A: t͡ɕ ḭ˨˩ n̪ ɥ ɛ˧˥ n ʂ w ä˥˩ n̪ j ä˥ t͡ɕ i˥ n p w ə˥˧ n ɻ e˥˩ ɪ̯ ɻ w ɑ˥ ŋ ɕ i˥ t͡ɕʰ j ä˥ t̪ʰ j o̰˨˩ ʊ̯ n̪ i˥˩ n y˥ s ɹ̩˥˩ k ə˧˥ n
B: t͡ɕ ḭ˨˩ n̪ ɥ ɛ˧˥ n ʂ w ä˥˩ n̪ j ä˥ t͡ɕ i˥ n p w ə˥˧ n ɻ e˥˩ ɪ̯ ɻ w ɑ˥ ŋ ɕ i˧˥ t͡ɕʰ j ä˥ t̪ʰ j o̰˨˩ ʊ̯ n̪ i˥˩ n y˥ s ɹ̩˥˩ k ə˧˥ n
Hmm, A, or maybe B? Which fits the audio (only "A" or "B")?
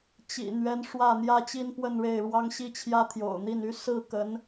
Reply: A